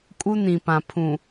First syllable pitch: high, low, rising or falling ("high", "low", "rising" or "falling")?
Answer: high